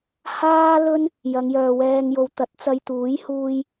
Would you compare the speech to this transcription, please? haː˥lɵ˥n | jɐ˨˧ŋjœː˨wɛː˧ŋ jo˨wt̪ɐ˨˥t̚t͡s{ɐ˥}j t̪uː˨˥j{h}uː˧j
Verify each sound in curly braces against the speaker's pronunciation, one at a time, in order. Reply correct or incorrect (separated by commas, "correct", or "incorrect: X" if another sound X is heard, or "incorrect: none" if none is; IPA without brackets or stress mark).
incorrect: ɐ˧, correct